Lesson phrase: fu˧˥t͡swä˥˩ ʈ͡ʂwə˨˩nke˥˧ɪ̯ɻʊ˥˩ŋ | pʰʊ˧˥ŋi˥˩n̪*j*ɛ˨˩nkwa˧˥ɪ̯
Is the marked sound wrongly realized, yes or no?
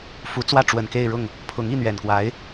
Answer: yes